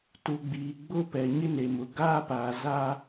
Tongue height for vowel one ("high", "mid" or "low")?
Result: high